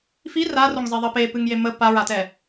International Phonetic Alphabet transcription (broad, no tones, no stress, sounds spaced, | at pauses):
f i r a r o ŋ zˤ i ðˤ ə p e p ɨ ŋ j e m ə p a ɹ a t ɛ